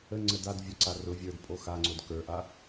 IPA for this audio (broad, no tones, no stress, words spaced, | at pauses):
əŋ͡ǀəd ad vʲʊǀa rʊ vʲə˞d pʼoxaŋ͡ǀod kə˞ʔa